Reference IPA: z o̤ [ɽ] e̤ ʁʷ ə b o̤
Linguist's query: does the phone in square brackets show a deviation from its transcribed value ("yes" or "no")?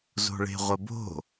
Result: yes